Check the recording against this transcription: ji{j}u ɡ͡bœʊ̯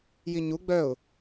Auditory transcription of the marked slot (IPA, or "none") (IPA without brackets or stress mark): ɲ